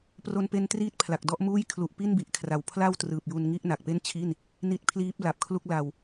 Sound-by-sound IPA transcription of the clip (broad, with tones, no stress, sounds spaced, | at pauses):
p r o˧ n p e˧ n t r iː˥˩ t̚ pʰ l a˨˩ k̚ d ɔ˥˩ ʔ m uː˥˩ j kʰ l u˨˩ ʔ p i˥˩ n b i˨˩ ʔ kʰ r a˩˦ w pʰ l a˥˩ w t r ɯː˨˩ p̚ j u˧ n ŋ i˥˩ ʔ n a˨˩ k̚ p e˥˩ n t͡ɕʰ i˥˩ n | n i˦˥ t̚ pʰ l iː˦˥ p̚ l a˨˩ p̚ kʰ l u˥˩ k̚ l a˧ w